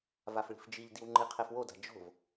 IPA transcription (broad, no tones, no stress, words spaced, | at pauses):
vafɭi̤fd͡ʒiʎdiw ŋ͡ǃiqʰefwoda̤ d͡ʒo̤v